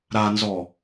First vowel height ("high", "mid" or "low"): low